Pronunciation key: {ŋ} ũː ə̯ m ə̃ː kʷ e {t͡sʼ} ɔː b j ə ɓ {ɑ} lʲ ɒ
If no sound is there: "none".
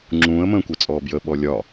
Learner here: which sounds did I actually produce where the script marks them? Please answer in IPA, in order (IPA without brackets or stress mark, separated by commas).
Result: ŋ͡ǁ, t͡sʼ, ɔ